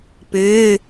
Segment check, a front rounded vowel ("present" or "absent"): present